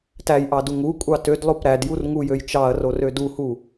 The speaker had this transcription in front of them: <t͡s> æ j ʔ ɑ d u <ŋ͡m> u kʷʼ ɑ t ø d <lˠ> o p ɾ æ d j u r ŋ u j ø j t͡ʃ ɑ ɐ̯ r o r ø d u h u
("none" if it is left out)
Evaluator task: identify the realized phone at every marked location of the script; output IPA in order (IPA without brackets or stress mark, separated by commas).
t, ŋ, lˠ